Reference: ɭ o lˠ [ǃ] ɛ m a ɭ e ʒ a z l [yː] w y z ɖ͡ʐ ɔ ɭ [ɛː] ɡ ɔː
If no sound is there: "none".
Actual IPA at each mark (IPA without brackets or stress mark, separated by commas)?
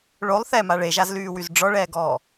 θ, yː, ɛː